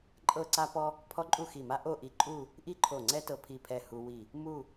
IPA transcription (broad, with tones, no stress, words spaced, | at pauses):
ǃʼɤ˥˧ǀa˥pɔ˥ | pʰɔ˥ǃʼu˥˧xi˧˩ma˥ ʔo˥˧ʔi˧ǃʼu˥˧ | ʔi˥ǃʰo˧˩ ŋ͡ǀɛ˥tɤ˧pʰi˧˩pʰɛ˧˩ hu˧ wi˧˩ | mu˥˧